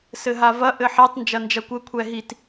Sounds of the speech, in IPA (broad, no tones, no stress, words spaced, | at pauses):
sɘɦavɐ ʔɘħetˤ nd͡ʒɐnd͡ʒɐkʷɘ kʷʰɛɦit